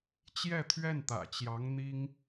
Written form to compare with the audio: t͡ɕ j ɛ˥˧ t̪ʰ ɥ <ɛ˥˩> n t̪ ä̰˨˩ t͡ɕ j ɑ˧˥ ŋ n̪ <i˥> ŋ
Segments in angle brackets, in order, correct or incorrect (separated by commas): correct, correct